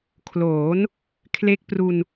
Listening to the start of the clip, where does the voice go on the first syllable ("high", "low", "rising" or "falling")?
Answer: rising